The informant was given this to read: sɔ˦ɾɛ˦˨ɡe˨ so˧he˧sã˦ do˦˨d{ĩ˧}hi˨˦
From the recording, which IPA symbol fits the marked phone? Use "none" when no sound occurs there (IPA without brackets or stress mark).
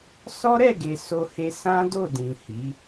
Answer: ĩ˨